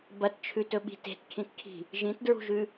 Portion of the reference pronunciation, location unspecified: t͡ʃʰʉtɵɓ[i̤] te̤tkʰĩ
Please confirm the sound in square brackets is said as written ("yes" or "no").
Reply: yes